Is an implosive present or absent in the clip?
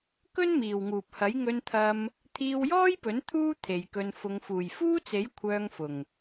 absent